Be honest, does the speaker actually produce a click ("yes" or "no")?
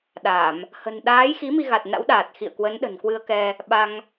no